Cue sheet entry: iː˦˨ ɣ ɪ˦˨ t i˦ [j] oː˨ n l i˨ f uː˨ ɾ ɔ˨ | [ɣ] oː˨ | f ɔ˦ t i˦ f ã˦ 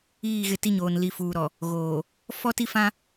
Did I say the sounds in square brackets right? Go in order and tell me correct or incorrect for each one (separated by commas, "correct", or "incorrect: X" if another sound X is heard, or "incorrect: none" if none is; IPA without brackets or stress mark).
incorrect: ɲ, correct